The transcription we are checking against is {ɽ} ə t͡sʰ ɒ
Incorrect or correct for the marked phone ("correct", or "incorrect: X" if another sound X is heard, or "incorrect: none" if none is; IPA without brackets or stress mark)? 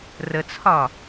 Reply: incorrect: r